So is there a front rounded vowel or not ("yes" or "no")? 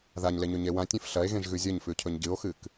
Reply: no